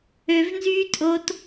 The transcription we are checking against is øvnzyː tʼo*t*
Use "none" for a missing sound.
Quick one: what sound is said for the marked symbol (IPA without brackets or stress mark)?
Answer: t